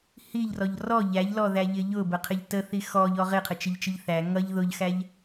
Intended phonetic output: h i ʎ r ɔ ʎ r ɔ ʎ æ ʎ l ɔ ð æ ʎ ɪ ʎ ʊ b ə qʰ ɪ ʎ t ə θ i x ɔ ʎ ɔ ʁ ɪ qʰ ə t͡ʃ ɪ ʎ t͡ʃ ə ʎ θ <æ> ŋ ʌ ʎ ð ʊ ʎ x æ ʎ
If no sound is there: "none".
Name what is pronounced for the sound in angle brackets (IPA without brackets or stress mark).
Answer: æ